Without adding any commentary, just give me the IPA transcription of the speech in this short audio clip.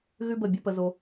ɣ ʉ˦ b ə˦˨ bʲ ʌ˦ p ə˧ z o˧

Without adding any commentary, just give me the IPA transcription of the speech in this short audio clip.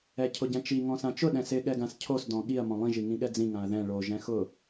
ɛ cʰ ʊ ɟ ɛ̃ t͡ʃ i ŋ ɔ̃ s ã t͡ʃ ʊ ɗ ɛ̃ s ɪ ɠ ɛ ɡ ã s cʰ o s d ɔ̃ ɠ i ɐ̯ m ɔ̃ lˠ ĩ ʒ i ŋ ĩ ɠ ɛ d͡z ĩ ŋ ã ɐ̯ ð ɛ̃ ɭ o ʒ ɛ̃ x ʊ

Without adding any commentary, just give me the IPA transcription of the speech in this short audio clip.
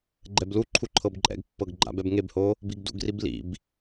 ɡ͡ǃ ɛ b l u ǃʰ u ǃʰ ɤ b ǃʼ ɛ̰ ɡ pː ɤ ɡ ɡ͡ǃ a̰ b ɛ b ŋ e b h o | b i ɡ d ṵ ɡ r i b l ḭ b

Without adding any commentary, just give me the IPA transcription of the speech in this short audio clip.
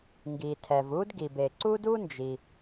ŋ ɡ i˩ tʰ ɛ˩ v u˥ d ɡ i˩ b e˩ ǀ u˥ d u˥ n d͡ʒ i˩

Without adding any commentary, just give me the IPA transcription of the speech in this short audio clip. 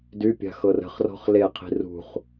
d y pʲ a̤ x ɤ r ə̤ χ r ɔ̤ χ l e qʰ i̤ r ṳ χ

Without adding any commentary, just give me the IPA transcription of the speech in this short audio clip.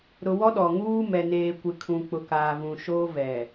ɾ ʊ˨ w ɔ˦ ɗ ɔ˨ ŋ uː˦ m ɛ˨ n eː˨ kʷ ɪ˨ kʰ ũ˨ k͡p ʊ˨ k aː˨ v ũ˨ ʃ oː˦ v ɛ˨

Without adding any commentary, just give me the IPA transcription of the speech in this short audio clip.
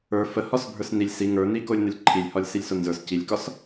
ə˞ f ə h ɒ s bʱ ə˞ s n i lʲ s i ŋ ə˞ n i k o lʲ n ə lʲ ǃʰ i lʲ h ɒ lʲ s i lʲ s o n z ə˞ s c i lʲ k ɒ s

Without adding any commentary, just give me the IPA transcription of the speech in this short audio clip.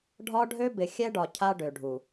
ɖʱ ɒ˦ ɖʱ ø˦ b ɪ˨ xʲ ɛ˦ ɖ ɒ˨ cʰ a˦ ɖ ø˨ ɖʱ u˨

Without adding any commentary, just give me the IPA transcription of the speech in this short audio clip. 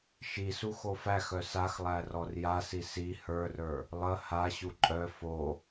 ʃ i s u x o f æ x œ s a x lˠ æ r ɔ r j a s i s i h ə˞ r ə˞ | lˠ ə h a ɕ u ǃʼ œ f o

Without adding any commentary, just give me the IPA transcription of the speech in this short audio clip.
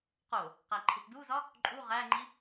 q o | q æ ǃʰ i t d u z ɒ | ǃʼ u ʁ æ ŋ͡ǃ i

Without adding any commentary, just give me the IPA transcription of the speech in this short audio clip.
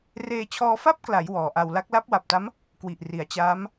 r eː˧ t͡ɕʰ ɔː˧ f a˥˩ p̚ k l a˩˦ j w ɔː˩˦ ʔ a˧ w l a˦˥ k̚ l a˦˥ p̚ w a˨˩ p̚ t a˦˥ m | k w i˨˩ ʔ r i˩˦ a̯ t͡ɕ aː˦˥ m

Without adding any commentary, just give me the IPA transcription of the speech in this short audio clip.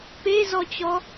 p e z ɔ t͡ɕ ɔ

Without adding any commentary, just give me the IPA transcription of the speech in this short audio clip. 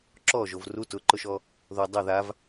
ǁ ɔ ʒ o v r u t ʊ ǃ ʊ ʃ ɔ | ð o dˤ o ð a v

